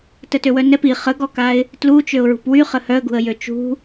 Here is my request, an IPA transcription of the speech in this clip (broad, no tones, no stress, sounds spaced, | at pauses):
t ə t ø w œ n ɛ p i χ ə ɡ ɔ k a ɪ̯ | t l u t͡ʃ ø ʊ̯ ɹ ṳ p w y χ ə h œ ə̯ ɡ ṳ ə̯ j ø t͡ʃ ṳ